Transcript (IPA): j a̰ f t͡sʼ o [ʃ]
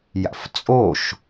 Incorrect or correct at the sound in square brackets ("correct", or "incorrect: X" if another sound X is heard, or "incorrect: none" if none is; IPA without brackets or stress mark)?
correct